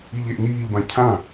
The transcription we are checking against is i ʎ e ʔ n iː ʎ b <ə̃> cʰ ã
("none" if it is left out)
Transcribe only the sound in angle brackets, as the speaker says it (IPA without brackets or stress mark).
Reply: ã